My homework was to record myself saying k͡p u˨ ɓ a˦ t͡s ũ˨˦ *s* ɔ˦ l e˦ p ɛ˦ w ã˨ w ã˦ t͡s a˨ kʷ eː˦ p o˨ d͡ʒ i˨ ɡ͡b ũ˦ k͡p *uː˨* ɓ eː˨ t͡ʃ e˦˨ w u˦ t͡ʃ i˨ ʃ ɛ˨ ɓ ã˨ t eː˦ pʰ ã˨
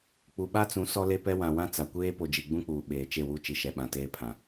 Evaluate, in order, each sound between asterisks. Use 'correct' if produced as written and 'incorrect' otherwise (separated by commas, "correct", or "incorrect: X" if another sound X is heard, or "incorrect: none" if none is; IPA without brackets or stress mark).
correct, correct